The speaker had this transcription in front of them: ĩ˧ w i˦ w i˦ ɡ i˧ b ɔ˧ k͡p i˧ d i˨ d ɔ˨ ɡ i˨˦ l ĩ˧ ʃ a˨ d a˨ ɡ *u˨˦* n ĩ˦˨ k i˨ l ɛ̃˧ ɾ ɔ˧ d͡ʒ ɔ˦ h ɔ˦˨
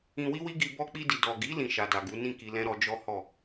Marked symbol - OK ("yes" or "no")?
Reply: yes